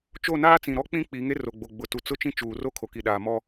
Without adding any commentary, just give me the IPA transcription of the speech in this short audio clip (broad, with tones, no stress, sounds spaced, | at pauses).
t͡ʃ o˦˨ n aː˦ t͡s ĩ˨ ɾ ɔ˦ k͡p ĩ˦ k͡p i˨˦ ŋ e˦ r o˨ ɡ͡b o˨ ɡ͡b ʊ˨ t u˨ t͡s ʊ˦ t͡ʃ ĩ˦ t͡ʃ uː˨ r o˦ kʰ o˨ k i˨ ɗ aː˨ m ɔ˦